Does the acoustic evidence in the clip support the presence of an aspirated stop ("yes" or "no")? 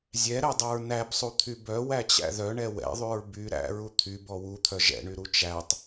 yes